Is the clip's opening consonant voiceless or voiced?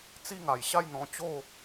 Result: voiceless